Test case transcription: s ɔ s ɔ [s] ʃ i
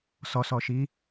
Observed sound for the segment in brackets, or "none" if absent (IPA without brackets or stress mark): none